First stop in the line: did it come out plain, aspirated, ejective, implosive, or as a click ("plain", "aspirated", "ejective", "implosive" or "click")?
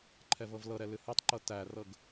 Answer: click